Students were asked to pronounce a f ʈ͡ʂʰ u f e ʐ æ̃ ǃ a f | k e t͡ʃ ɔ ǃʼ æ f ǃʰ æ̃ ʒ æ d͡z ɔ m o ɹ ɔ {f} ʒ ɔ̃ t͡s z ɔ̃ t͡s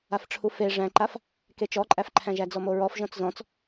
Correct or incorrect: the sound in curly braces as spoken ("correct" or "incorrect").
correct